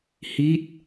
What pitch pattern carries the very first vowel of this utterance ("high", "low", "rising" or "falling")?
falling